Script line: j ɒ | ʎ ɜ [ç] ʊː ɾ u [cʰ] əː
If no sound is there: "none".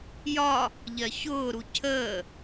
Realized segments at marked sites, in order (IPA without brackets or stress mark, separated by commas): ç, cʰ